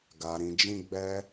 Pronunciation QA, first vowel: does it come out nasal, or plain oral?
oral